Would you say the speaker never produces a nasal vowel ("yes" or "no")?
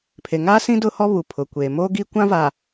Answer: no